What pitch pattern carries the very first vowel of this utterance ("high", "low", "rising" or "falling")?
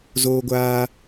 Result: high